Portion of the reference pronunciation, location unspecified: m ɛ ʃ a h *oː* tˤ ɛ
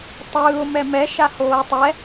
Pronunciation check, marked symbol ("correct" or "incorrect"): correct